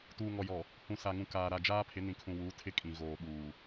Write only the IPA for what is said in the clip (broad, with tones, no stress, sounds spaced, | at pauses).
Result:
t uː˨ ŋ ɔ˨ j ɔ˨ | h ũ˨ s a˨ ŋ ũ˨ k aː˨ ɾ a˨ d͡ʒ aː˦ pʰ ɪ˨˦ n ĩ˨ kʰ ũ˨ w uː˨˦ tʰ ɪ˦ kʼ ĩ˨ ɣ oː˨ ɓ uː˨